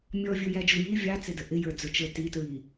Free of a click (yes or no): yes